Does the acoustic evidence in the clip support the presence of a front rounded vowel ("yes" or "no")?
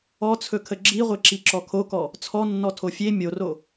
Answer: no